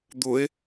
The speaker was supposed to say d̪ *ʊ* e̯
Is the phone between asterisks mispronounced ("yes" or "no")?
no